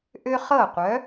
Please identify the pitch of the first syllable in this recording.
high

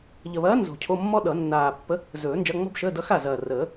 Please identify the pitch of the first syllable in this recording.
low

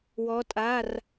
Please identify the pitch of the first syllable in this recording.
rising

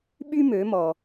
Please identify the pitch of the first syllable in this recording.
high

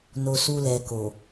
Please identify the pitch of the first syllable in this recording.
low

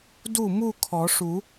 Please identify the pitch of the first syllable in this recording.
falling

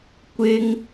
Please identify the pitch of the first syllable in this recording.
high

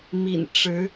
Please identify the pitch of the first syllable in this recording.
low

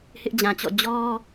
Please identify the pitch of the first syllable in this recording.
high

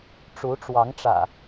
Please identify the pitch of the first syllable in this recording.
rising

